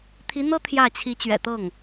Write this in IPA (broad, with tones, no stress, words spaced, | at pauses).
t̪ʰi˧˥n̪ɤ˥ t̪ʰjä˥˩ t͡ɕʰi˧˥t͡ɕɥɛ̰˨˩t̪ɤ˥˩ŋ